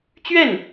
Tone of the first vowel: falling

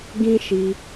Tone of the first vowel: high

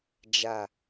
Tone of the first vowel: falling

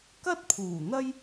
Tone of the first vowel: high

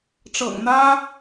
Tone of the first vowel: low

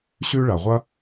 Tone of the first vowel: high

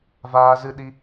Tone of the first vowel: high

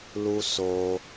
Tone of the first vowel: high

